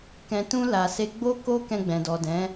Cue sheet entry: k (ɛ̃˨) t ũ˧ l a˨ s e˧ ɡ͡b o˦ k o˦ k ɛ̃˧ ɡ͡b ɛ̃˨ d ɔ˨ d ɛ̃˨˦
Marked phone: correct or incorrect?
correct